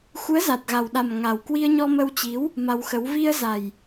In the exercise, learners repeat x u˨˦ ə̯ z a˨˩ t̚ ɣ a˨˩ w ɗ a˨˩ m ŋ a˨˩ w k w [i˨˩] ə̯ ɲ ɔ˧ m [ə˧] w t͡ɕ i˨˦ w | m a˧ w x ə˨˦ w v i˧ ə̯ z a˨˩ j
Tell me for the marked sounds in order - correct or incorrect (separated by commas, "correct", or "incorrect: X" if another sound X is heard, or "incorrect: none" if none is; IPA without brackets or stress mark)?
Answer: incorrect: i˧, correct